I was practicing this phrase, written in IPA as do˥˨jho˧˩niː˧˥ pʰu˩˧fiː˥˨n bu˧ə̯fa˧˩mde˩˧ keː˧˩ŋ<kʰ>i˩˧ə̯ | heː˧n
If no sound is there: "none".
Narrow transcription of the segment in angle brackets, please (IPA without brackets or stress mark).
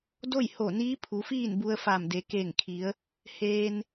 kʰ